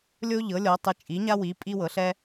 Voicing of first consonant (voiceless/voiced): voiced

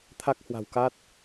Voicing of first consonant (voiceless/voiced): voiceless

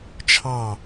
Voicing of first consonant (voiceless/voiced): voiceless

